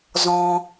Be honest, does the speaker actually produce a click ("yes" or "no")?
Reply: no